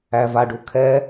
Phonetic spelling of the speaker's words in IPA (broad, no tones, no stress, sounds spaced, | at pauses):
æ v a ɖ u kʰ ɛ